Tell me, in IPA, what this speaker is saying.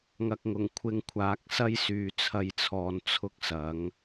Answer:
ŋ ɐ˨ k̚ ŋ ʊ˨˩ ŋ kʷʰ ɪ˧ ŋ kʷʰ aː˨˥ k̚ s ɐ˥ j s yː˨ t͡sʰ ɐ˧ j t͡sʰ ɔː˨ n t͡sʰ ʊ˥ k̚ s ɐ˨˥ ŋ

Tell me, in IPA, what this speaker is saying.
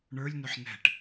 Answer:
ɳ ə˞ lʲ n ʊ ħ n ɛ̤ ʈ

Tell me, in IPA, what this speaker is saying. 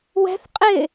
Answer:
w ɛ̤ θ qʼ ɪ

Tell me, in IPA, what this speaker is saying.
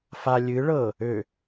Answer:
f a lʲ ɨ ɭ ɤ | ø

